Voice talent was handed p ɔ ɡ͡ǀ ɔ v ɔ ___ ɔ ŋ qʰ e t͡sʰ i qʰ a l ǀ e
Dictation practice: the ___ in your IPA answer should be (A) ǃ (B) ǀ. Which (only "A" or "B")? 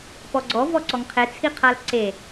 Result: B